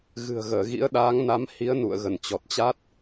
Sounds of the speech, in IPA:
ɣ ɨ̤˨˩ ə̯ ɣ əː˧˩ ɣ ḭ˧˥ ə̯ ɗ aː˨˦ ŋ n a˨˦ m h i˨˦ ə̯ n ṵ˧˨ ə̯ ɣ ə˧˩ n t͡ɕ ɔ˨˩ t̚ t͡ɕ a˦˥ t̚

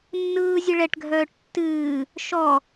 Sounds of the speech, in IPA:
nː ɯː zʲ ɨ ɭ ɛ ʈ ɡʱ œː ʈ tː ɨː | ʃ ɔ

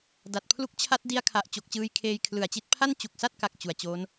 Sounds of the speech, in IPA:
d a˨˩ t̚ pʰ l u˦˥ k̚ t͡ɕʰ a˦˥ t̚ d i˦˥ a̯ kʰ a˨˩ ʔ t͡ɕ o˨˩ k̚ t͡ɕ ɯː˧ j kʰ eː˧ j kʰ l ɯ˨˩ a̯ t͡ɕ i˦˥ t̚ pʰ a˥˩ n t͡ɕ u˨˩ k̚ s a˥˩ t̚ k a˨˩ k̚ t͡ɕ u˨˩ a̯ t͡ɕ o˦˥ n

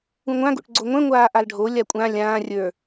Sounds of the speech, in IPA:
ũ ŋʷ ã ɡ o̰ ʈ ɡ͡ǀ o ŋʷ ɛ̃ ŋʷ aː ʔ a l ɖʱ o lʲ a kʷʼ ã lʲ ãː rʲ ə˞

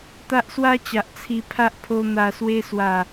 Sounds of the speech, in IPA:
t̪ a˦ ʔ s w a˦ t͡ɕ a˨ ʔ t͡sʰ i˧ pʰ a˦ ʔ pʰ o˧ n̪ a˨˩ s w e˧ s w a˨˩

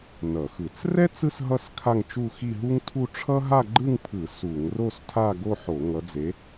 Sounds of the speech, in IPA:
n ʌ˧˩˧ x ɯ˧˩˧ t͡s r ɛ˥ t͡s ɯ˥ s ɦ ʌ˥˧ s kʰ a˥˧ ŋ t͡ʃ u˥˧ x i˥˧ ɦ u˥ ŋ tʰ u˥˧ ʈ͡ʂʰ ʌ˥ ɦ a˥˧ ɡ͡ǃ ɯ˥˧ ŋ pʰ ɯ˧˩˧ s u˧˩˧ ŋ r o˥˧ s tʰ a˥˧ ɡ o˥˧ ħ o˧˩˧ ŋ ʌ˨˦ d͡z e˨˦

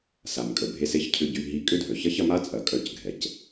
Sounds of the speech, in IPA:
s a˩ m kʼ ə˩ bʱ e˧ s e˥ ç cʰ ʏ˧ ɟ y˧ ɦ i˧ kʼ ʏ˥ dʱ œ˩ ç ɐ˥ ç ɐ˧ m a˥ t͡sʼ ɐ˩ kʼ œ˧ c ɡʱ ɛ˩ c

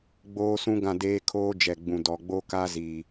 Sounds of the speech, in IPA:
ɡ͡b oː˦ s ũ˦ ɡ ã˦˨ d eː˦ kʰ oː˦ d͡ʒ ɛ˨ ɡ͡b ũ˨ d ɔ˨ ɡ͡b o˦ k a˦ z iː˨

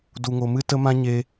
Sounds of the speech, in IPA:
d u˨ ŋ o˨ m ɨ˦ t ə˦ m ã˦ ɲ e˧

